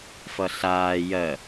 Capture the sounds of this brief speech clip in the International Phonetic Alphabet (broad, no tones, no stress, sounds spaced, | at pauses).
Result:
f ʌ ɬ aː j ɜ